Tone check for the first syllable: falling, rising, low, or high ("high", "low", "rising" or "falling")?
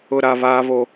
low